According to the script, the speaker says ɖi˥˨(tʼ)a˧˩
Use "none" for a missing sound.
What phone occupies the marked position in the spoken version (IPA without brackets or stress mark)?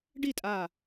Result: tʼ